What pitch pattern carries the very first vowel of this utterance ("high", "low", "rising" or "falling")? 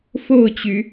falling